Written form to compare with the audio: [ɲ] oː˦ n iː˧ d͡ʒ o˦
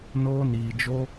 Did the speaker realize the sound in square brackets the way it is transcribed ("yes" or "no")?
no